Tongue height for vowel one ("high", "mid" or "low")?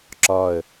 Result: low